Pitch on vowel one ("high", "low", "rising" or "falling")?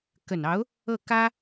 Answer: low